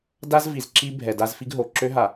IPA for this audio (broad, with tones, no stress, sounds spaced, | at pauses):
d a˦ z v i˨ z ǁ i˦ bʱ ɛ˨ d a˦ z f i˦ ɡ ɦ o˨ ǁ ø˦ ɦ a˨